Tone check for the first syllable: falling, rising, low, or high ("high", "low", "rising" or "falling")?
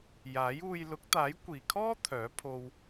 rising